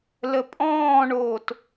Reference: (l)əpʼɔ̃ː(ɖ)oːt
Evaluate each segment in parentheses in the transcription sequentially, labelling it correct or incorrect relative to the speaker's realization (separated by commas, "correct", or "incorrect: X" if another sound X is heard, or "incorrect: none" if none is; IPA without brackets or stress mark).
correct, incorrect: ɳ